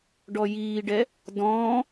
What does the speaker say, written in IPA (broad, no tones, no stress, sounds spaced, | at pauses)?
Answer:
ɖ ɔ j iː ɖ ɛ | d ɔ̃ː